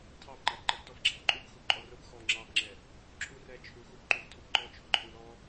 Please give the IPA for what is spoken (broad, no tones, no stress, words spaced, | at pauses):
tʰɑbŋ͡ǃɑb ǃʌbtɔfɡ͡ǁælǃʼub xubǃʼɔrʊb xɔ ŋ͡ǁɑbŋ͡ǁɛ | ǁʰurɛt͡ʃʰuxub ǃuftʰʊbǃɔ t͡ʃʰʊɡ͡ǃʊɾil ɔ